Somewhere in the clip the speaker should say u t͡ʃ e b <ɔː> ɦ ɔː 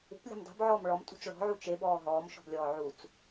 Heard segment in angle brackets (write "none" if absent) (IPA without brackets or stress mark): ɔː